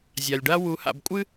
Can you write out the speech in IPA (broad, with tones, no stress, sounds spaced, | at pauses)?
zʲ a˩ lʲ ɖ a˥ w u˧˥ h a̰˧ b kʷʼ ɨ˥